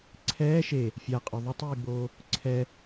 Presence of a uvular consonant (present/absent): present